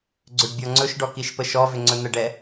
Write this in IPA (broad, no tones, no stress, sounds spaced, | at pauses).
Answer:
ɡ͡ǀ ʏ ɖ bʲ ɔ ŋ͡ǀ ɵ ʃ ɖ ɔ k i ʃ p ə ʃ ɔ v ʏ ŋ͡ǀ ɵ n̪ ə ɖ ɛ